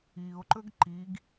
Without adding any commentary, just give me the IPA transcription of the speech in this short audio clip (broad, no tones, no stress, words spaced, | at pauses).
io̯ǃɵɡ ǃiɡ